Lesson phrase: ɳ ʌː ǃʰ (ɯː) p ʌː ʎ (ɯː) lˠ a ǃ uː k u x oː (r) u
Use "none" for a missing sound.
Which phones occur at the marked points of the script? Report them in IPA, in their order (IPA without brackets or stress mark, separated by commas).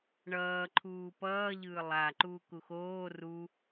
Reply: uː, ɯː, r